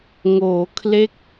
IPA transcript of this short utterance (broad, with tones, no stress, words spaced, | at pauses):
ŋoː˩˦kʰle˦˥k̚